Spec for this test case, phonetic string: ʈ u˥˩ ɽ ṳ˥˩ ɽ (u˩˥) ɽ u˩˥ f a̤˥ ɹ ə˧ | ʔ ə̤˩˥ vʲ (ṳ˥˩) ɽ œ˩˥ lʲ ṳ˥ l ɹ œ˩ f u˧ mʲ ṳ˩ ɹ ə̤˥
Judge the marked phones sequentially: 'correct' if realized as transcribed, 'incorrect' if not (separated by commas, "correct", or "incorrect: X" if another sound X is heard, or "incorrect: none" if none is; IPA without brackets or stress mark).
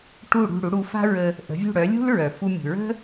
correct, correct